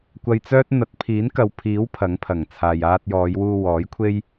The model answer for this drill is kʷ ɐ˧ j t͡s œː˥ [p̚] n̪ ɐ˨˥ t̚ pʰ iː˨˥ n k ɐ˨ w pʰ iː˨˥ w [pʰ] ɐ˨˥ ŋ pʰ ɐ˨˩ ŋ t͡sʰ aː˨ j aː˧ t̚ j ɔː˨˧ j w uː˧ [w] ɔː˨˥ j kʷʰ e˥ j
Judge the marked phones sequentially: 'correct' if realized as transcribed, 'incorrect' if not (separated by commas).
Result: incorrect, correct, correct